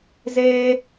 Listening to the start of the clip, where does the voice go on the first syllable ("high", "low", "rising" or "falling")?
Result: high